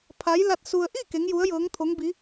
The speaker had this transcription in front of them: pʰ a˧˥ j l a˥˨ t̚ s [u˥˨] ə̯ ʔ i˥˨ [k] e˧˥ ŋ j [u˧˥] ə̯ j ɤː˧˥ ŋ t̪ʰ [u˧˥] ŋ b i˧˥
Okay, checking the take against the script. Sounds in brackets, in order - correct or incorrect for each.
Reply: incorrect, correct, correct, incorrect

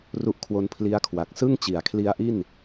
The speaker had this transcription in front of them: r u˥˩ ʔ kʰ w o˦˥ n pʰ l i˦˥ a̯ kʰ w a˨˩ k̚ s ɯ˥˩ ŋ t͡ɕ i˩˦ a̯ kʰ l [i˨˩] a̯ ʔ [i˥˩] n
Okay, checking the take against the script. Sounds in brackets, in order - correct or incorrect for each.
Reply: incorrect, correct

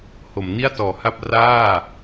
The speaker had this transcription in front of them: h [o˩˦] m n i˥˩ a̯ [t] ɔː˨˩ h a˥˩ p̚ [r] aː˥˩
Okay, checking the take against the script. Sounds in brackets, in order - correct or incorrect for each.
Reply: correct, correct, correct

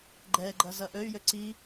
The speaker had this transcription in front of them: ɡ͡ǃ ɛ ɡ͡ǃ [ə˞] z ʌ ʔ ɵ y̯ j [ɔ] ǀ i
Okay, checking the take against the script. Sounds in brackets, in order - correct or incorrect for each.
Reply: incorrect, incorrect

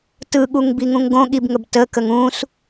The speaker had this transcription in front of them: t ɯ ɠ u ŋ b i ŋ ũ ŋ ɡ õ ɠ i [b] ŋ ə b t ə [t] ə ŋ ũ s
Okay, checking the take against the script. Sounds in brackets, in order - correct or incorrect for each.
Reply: correct, incorrect

